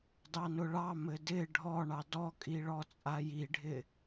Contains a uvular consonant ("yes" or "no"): no